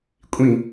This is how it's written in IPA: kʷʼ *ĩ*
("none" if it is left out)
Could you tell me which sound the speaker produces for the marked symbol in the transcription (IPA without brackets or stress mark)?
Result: ĩ